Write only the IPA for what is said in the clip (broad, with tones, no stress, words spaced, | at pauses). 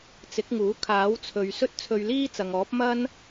t͡sɪ˨˥k̚ŋuː˨˥ kʰaː˨˥wt͡sʰɵ˨ɥ sɵ˥t̚t͡sʰɵ˧ɥliː˥ t͡sɐ˨ŋɔː˨˥p̚ mɐ˥n